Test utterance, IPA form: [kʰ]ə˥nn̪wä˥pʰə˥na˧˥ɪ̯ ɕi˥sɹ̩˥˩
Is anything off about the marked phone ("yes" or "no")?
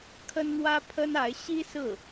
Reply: no